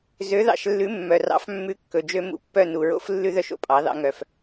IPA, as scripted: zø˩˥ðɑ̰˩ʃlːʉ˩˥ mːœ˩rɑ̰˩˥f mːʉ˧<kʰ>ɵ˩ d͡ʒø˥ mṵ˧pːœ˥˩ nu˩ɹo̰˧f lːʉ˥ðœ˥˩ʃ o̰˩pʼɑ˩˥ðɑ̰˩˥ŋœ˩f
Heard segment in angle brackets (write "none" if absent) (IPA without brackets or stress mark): kː